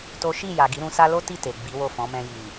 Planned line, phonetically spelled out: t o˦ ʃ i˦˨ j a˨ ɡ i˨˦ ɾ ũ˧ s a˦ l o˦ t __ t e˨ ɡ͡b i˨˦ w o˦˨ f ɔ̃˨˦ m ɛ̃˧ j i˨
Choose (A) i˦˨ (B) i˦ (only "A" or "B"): A